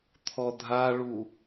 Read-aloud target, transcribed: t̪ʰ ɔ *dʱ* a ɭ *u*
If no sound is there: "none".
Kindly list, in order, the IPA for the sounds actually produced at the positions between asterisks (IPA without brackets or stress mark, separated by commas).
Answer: dʱ, u